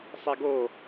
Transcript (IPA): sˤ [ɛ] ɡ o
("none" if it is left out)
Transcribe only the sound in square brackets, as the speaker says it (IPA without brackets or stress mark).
ɛ